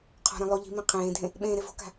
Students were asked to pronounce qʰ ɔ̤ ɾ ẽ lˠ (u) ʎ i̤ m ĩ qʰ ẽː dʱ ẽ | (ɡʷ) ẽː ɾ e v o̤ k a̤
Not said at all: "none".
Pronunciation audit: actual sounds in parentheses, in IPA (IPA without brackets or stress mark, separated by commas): o, ɓ